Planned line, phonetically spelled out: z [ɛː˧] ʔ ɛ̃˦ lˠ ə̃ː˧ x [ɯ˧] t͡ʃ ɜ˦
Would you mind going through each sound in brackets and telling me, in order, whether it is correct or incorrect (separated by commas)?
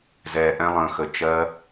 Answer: correct, incorrect